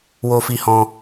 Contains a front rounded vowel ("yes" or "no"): no